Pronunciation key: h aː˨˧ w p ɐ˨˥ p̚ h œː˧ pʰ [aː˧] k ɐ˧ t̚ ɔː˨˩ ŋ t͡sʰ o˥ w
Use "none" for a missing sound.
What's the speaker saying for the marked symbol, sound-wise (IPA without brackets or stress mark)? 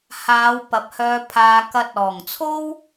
aː˧